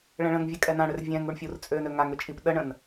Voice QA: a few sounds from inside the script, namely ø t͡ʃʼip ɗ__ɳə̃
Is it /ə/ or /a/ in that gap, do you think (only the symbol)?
ə